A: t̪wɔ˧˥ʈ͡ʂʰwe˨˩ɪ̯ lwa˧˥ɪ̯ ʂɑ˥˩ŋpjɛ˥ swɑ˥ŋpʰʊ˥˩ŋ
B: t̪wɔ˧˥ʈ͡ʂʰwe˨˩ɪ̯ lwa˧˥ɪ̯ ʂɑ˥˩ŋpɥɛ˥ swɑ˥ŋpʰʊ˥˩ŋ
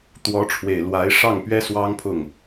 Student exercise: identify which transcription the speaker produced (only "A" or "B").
B